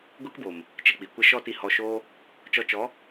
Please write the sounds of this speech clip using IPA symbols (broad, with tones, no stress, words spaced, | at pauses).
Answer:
ɡʷe˦kbo˨m | t͡ʃə˧k͡pi˨kʷə˦ ʃɔ˦ti˧hɔ˧ʃoː˦ | t͡ʃɔ˧t͡ʃɔ˨˦